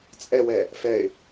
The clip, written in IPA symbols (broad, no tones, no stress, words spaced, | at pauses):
t͡sʼɛwɛ | fɛɪ̯